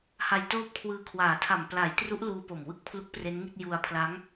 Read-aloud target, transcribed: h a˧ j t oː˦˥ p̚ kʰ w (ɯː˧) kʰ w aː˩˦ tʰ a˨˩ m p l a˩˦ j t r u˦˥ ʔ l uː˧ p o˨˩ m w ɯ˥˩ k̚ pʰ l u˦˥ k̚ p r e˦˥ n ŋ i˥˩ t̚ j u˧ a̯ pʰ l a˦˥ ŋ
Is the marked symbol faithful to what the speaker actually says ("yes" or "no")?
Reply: yes